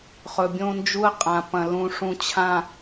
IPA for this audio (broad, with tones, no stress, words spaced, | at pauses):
χɵ˨bʲõ˦nd͡ʒu˦ə̯qʼã˨ pɐ̃˨lũ˨ʂũ˨t͡ɕʰã˨